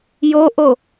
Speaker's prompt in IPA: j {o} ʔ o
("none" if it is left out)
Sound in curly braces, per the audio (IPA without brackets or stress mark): o